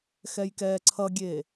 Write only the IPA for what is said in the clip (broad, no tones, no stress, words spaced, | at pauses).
xɛjkɛːǀʰʌɡʲeː